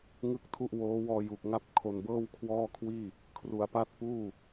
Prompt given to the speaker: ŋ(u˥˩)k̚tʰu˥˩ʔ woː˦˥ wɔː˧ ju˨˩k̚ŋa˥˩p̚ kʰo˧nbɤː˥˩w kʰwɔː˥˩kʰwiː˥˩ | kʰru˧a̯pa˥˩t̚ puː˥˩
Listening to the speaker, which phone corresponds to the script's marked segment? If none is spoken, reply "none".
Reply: ɯ˥˩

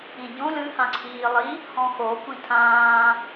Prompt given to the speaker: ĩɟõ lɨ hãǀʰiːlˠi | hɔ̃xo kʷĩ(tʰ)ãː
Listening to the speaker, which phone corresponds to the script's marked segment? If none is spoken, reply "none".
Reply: tʰ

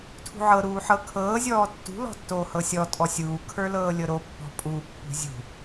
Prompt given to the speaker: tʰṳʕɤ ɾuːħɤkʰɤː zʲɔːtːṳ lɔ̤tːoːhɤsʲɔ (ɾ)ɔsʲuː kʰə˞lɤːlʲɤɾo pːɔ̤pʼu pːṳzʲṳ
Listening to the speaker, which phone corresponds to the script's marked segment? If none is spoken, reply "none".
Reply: tʼ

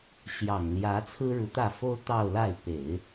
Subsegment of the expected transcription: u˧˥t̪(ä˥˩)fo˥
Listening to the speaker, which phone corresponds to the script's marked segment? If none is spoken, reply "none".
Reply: ä˥˩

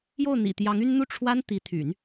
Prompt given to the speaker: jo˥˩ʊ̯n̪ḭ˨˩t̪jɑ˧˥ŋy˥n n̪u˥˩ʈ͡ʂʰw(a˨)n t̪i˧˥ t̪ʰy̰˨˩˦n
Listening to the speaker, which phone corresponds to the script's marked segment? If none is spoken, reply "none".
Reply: a˥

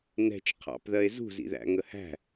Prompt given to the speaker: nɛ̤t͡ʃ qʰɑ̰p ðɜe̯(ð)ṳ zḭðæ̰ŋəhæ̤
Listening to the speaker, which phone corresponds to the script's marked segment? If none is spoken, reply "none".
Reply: z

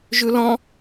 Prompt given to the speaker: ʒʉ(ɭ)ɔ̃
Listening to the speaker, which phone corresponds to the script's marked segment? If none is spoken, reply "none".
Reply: l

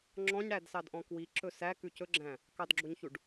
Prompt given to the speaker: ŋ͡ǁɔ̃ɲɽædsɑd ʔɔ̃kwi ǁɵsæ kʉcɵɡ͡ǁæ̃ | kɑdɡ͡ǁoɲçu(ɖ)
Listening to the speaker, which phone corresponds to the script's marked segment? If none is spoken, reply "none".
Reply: ɖ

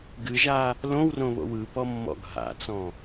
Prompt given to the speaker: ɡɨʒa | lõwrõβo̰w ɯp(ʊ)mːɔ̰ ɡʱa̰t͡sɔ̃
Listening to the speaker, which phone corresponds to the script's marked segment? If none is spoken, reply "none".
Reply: ɔ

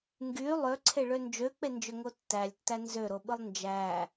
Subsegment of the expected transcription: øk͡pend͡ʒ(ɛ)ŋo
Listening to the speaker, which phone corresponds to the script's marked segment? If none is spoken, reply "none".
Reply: ø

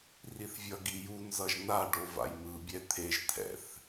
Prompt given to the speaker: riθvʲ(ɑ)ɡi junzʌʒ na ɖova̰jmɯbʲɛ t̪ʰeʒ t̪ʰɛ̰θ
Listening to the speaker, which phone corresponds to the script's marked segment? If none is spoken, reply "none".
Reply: ʌ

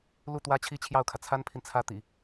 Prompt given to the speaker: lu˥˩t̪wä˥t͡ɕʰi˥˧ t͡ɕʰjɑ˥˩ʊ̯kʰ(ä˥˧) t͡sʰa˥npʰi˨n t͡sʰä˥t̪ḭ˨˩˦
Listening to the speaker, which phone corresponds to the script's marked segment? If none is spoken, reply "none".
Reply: ä˩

